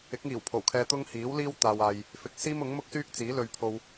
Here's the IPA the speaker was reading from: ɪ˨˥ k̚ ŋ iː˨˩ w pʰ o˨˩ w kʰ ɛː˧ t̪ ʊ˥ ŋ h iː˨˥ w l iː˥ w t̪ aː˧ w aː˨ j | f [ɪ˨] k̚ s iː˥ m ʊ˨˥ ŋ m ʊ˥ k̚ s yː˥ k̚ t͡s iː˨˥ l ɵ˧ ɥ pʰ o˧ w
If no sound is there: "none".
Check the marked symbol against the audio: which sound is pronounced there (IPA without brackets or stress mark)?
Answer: ɪ˨